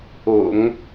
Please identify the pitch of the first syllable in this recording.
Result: low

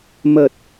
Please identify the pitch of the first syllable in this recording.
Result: low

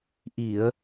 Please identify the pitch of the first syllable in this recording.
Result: low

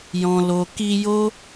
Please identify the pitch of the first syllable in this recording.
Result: low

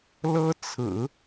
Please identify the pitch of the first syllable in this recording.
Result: high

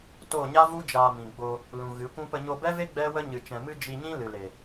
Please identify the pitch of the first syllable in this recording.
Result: falling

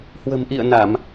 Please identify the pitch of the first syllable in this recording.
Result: low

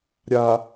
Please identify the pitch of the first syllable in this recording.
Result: low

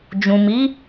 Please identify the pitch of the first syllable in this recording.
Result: low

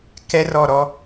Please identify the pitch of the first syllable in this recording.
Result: high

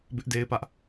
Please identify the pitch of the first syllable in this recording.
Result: high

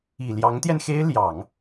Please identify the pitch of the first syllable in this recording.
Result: low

